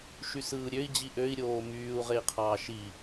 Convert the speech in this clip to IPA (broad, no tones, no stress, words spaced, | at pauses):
ʃysɯːɾʲøi̯ d͡ʑiʔøi̯ ɾʲoːmyːu̯ ʁei̯qʰɑːʃi